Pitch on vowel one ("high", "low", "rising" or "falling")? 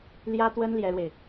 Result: high